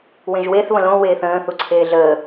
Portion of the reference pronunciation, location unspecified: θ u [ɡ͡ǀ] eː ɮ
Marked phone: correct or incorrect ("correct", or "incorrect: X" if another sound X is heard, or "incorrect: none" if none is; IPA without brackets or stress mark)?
incorrect: ǀʰ